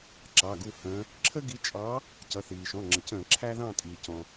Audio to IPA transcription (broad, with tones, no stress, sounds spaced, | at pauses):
ǁ ɑ˩˧˩ ɡ u˦˨ h ə̃ː˨˦ | ǁʰ ə˦ ɡ i˨˦ t͡ʃʼ ɑ˨˦ | c ʌ˩˧˩ θ iː˩ ʃ ɔ̃˩˧˩ ŋ͡ǁ ə˩ c ə̃ː˧˩˧ ǁʰ æ˦ ð ɑ̃˦˨ tʼ iː˩ c ɔ̃˩